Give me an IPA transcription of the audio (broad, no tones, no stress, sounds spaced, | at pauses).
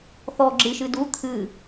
θ ɔ ɡ͡ǁ ɨ ʃ ɨ d u t̪ʰ ɨ